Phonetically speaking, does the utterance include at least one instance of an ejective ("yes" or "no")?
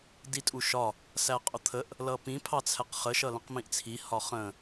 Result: yes